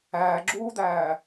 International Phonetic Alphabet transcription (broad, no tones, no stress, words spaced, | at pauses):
æːɡ͡ǁuːd̪æː